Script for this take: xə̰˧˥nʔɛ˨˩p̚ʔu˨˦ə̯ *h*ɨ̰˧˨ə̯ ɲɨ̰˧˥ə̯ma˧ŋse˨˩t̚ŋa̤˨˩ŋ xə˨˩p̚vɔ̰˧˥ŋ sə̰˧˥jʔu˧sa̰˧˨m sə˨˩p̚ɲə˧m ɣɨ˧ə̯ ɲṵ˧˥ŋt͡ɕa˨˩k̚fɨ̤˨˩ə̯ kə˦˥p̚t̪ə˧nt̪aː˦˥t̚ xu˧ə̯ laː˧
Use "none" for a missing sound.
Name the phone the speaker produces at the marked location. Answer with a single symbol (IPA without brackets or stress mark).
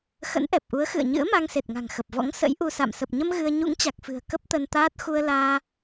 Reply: x